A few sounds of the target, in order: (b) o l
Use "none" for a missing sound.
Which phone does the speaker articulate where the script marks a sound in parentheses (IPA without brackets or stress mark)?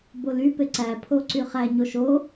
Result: b